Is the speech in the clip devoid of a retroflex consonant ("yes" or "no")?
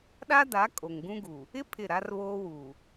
yes